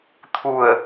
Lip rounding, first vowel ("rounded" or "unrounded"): rounded